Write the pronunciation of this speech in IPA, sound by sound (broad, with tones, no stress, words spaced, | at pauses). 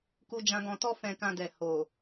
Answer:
ku˧d͡ʒã˧ɡɔ̃˧tɔ˦ fɛ̃˧kã˧dɛ˨ ho˨